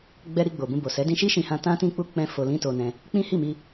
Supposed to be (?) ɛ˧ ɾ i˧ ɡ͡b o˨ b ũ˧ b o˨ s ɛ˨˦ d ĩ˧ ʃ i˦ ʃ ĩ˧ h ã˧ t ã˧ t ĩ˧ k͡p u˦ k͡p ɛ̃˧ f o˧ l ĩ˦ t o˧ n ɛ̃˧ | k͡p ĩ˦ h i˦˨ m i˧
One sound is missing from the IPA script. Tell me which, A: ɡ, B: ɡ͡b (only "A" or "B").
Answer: B